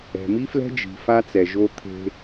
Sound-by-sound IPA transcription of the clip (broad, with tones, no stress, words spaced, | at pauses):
ɛ̤˨mi˦flɛ̤˦ d͡ʒi̤˨ fa˦ t͡sɛ˨ʒo˦ t̪ʰe̤˦